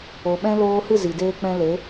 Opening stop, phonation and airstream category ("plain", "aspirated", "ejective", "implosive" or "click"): implosive